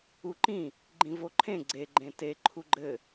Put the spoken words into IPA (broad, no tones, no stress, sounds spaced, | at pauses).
u ǃ ĩ | ɡ͡ǃ ĩ v o ǃʰ ẽ ɡ͡ǀ e ɡ͡ǃ ẽ t e ǃʰ u ɡ͡ǃ ɘ